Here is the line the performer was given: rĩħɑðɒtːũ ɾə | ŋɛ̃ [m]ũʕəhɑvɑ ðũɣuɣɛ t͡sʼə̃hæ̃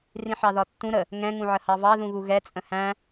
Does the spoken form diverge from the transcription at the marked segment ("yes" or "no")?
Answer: yes